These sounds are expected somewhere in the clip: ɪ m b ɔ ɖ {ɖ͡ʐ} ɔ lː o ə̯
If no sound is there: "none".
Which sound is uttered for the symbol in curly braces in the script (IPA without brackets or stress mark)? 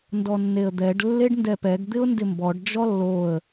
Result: d͡ʒ